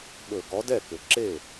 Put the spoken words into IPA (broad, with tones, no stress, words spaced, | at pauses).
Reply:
ɓɵ˧˩˧ ɡɔ˨˥dɛ˥˩kʏ˩ ǁe˥˩